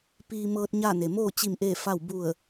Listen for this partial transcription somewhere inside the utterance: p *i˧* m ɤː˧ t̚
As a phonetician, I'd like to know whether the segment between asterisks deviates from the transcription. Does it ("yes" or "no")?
yes